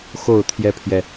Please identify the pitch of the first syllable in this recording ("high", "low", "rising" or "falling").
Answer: falling